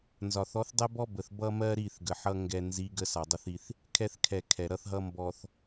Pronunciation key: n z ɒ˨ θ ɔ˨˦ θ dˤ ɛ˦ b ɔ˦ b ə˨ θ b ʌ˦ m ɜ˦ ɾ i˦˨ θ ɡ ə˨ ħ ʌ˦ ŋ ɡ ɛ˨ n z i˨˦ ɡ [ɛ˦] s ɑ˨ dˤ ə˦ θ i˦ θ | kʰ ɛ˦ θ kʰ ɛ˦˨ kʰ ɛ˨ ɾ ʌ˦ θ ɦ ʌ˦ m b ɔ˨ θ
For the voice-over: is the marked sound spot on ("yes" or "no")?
no